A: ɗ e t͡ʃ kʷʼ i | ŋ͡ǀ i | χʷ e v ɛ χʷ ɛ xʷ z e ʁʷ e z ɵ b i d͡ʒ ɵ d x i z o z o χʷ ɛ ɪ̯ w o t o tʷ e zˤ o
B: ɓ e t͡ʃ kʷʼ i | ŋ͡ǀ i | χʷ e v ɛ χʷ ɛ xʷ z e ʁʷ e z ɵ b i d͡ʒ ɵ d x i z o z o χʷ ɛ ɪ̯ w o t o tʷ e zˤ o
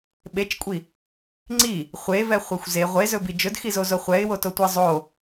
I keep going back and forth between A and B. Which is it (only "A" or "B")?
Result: B